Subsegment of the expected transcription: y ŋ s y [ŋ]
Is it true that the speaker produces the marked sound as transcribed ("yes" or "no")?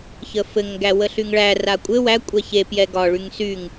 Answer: yes